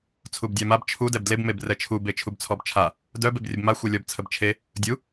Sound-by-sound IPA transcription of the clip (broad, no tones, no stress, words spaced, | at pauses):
t͡sʰubdʲamab t͡ʃʰu dɛbdleb mebrɛt͡ʃʰu bet͡ʃʰubt͡sʰɔbt͡ʃʰa | dœb ebrʲəbma xʷɛlʲɔb t͡sʰəbt͡ʃʰe | dʲu